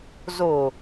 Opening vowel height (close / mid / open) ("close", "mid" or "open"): mid